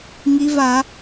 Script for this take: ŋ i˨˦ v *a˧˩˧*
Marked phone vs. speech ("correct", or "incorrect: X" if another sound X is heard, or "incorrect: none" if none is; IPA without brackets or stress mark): correct